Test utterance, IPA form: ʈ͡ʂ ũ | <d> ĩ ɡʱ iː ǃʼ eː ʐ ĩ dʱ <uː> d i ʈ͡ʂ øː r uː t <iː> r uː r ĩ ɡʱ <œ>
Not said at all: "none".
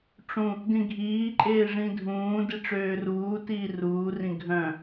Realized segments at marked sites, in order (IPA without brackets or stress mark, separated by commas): d, ũː, iː, œ̃